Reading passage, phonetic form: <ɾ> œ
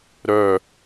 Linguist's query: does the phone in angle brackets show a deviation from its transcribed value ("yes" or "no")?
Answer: no